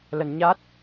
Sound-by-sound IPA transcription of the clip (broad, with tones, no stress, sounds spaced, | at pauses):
l ə˧ n ɲ a˦˥ t̚